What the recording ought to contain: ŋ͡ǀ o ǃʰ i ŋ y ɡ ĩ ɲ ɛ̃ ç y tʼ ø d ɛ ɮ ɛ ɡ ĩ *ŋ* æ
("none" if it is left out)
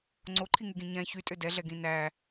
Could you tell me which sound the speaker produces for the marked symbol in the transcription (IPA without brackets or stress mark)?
n